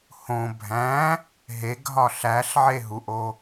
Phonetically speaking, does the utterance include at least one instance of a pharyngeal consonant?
yes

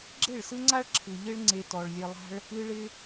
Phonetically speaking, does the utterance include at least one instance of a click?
yes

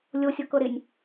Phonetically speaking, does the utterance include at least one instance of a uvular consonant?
no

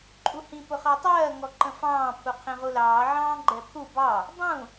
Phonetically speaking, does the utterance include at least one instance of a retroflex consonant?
no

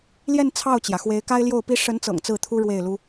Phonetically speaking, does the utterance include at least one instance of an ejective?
no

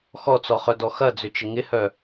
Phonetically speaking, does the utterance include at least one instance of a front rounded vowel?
yes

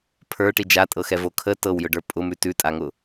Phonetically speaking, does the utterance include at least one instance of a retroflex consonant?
yes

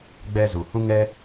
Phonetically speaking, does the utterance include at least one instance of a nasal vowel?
yes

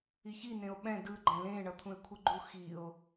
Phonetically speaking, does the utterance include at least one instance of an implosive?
yes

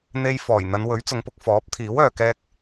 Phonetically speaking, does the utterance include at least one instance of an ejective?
no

